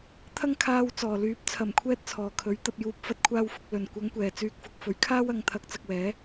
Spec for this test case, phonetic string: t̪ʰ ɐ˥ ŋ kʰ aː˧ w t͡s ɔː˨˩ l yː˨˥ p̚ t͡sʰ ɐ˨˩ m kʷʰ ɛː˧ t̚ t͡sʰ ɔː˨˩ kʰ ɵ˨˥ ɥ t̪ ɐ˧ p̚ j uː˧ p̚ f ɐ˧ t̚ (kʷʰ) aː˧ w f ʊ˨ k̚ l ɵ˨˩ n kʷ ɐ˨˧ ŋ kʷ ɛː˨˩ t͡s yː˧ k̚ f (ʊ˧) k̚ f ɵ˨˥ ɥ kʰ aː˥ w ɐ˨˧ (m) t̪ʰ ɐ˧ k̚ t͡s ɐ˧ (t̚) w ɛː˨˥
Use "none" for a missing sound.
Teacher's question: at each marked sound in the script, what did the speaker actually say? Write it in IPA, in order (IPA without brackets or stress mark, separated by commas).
kʷʰ, ʊ˧, ŋ, k̚